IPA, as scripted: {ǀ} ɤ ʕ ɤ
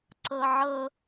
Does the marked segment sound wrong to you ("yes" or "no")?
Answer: no